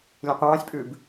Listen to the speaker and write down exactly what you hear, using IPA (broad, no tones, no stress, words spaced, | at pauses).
lʲẽqʷɑ̃ːsʲpʼʉb